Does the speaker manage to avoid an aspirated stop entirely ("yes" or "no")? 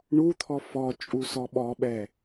no